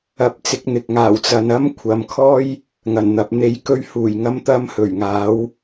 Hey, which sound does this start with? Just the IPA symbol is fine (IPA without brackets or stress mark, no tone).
ɐ